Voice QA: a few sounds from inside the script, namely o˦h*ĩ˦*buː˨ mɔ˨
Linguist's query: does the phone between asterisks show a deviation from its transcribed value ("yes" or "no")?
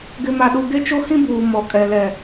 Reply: no